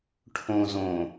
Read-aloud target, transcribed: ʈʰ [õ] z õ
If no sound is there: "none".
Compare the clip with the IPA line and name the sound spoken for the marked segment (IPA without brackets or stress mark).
õ